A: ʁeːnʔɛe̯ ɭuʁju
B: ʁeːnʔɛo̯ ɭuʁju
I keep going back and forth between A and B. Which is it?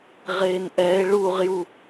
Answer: A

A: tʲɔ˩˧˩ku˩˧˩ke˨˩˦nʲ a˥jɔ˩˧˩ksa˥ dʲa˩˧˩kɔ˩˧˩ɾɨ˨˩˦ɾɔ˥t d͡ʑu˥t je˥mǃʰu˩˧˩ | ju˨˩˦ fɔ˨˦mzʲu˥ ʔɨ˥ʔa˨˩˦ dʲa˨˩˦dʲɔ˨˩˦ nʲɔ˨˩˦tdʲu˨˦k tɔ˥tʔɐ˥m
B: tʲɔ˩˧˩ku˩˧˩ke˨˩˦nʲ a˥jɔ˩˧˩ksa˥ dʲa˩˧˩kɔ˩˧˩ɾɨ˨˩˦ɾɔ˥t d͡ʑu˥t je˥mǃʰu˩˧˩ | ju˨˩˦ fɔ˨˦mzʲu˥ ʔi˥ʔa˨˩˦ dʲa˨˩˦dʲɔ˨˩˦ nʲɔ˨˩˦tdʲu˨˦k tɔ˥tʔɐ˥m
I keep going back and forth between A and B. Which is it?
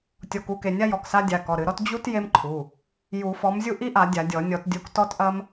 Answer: B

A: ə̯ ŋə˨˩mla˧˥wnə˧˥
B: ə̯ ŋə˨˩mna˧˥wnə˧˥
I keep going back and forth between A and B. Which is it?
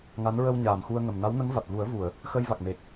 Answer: B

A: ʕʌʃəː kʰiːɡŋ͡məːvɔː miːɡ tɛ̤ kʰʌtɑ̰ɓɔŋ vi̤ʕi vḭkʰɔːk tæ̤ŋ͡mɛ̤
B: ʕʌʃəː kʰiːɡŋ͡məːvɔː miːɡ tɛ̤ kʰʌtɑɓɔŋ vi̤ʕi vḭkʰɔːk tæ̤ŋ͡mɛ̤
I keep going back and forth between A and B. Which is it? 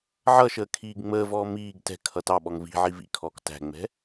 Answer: B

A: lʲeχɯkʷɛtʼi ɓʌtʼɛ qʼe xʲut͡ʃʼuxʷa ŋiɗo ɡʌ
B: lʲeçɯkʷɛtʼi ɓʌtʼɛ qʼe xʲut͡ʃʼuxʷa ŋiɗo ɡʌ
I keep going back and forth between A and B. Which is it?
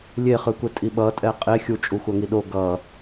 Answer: A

